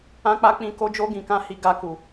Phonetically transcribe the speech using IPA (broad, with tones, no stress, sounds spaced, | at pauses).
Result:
ã˧ k͡p a˧ k͡p ĩ˨ k o˧ d͡ʒ o˧ ɡ ĩ˨ k ã˧ h i˨ ɡ a˨ k u˨